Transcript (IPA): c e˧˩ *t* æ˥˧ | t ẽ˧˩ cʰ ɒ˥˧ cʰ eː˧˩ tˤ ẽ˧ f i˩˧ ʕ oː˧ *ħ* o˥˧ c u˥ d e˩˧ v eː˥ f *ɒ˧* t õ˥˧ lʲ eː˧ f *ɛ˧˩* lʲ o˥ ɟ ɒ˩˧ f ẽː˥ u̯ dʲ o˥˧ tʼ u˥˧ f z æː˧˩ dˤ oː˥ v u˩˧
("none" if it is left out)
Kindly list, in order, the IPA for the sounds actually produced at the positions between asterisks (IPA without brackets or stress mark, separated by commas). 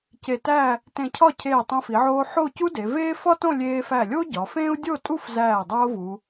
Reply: t, ħ, ɒ˥, æ˧˩